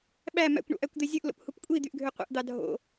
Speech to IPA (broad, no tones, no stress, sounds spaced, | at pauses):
ɓ æ m æ̰ kʷ ɳ o̰ ʔ æ kʷ d̪ e zʲ ɯ ʔ l o̰ p h u p kʷʼ i d̪ y ʔ ɡʱ ø qʷ ḛ ʔ d̪ ɑ dʱ o̰